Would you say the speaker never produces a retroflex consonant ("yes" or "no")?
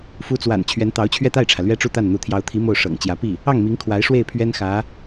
no